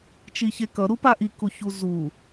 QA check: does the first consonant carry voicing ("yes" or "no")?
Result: no